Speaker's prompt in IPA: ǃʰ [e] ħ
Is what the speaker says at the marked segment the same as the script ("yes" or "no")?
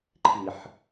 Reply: no